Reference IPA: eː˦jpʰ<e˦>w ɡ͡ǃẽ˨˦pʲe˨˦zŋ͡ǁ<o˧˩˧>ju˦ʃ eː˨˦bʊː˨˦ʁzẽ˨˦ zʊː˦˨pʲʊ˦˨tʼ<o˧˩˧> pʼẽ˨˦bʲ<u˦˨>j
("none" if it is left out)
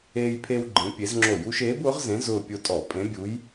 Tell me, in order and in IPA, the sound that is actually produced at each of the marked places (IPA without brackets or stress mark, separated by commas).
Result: e˦, o˧˩˧, ɔ˧˩˧, u˨˦